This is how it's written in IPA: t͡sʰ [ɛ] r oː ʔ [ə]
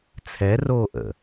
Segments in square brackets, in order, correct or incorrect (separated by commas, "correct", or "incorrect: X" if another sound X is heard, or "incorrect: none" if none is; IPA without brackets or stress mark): correct, incorrect: ə̰